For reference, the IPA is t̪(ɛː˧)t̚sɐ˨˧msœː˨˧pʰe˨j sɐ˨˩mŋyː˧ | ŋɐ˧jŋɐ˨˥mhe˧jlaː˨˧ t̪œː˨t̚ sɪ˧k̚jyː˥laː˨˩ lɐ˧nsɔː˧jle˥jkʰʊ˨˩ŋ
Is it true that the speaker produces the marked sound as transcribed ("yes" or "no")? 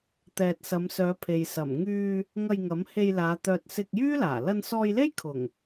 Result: no